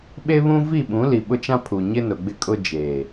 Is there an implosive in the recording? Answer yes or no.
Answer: yes